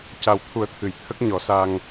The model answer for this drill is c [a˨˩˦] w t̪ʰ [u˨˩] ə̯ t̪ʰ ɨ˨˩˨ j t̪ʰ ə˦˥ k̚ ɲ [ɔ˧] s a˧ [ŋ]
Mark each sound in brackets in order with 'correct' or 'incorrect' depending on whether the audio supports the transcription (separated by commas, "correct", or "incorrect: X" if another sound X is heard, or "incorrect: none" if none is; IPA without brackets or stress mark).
incorrect: a˨˩, incorrect: u˨˩˦, incorrect: ɔ˨˩˦, correct